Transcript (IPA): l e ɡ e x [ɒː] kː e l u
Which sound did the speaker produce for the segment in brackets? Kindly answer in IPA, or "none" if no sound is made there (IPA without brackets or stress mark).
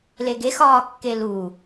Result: ɒː